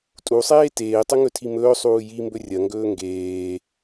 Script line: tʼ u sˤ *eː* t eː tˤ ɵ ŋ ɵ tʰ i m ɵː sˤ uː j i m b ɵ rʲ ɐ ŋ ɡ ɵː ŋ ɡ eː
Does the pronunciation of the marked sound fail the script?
no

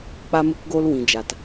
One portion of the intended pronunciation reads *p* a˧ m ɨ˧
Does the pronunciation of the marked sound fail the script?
yes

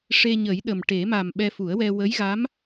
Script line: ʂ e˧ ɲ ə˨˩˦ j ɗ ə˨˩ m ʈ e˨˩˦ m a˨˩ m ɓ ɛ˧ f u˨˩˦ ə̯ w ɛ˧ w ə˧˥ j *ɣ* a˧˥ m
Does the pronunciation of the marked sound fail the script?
no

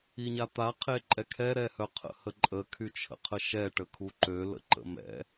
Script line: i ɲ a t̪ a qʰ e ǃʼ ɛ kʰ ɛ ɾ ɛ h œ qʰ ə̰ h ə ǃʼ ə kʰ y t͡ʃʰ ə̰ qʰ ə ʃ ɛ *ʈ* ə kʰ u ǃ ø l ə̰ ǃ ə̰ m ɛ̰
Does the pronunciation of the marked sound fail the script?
no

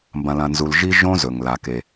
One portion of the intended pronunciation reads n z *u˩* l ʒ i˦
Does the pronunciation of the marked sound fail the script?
yes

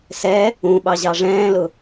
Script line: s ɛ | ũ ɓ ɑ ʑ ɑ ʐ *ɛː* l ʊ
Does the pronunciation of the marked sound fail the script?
yes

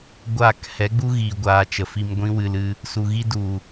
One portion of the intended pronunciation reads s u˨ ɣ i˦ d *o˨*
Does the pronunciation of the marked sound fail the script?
yes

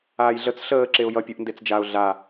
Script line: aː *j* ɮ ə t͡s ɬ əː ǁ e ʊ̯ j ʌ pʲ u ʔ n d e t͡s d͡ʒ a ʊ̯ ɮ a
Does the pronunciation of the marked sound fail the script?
no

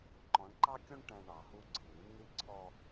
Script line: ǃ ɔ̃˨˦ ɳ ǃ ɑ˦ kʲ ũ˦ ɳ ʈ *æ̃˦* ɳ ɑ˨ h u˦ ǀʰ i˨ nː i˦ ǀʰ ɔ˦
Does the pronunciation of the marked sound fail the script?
yes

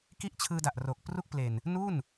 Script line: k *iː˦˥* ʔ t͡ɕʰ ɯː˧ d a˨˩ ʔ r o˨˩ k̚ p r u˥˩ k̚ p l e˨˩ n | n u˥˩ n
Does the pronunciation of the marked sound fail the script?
yes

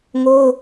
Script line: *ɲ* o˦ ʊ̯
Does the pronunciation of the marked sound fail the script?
yes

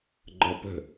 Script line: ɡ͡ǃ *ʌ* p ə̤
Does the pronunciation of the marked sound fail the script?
no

